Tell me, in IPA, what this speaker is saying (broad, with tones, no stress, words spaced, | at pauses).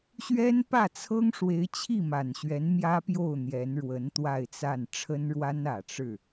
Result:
ɕɥɛ˥npä˥˩t͡sʰɤ˥ŋ ʂwe˧˥ɪ̯t͡ɕʰi˥˩ma˨˩nɕɥɛ˧˥n mjä˥pjo˥˩ʊ̯ n̪jɛ˧˥nɻwə˧˥nt̪wa˥˧ɪ̯t͡sa˥˩n ʈ͡ʂʰə˥nɻwa˥n ä˨˩ ʈ͡ʂɻ̩˥˩